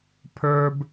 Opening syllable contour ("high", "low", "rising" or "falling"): high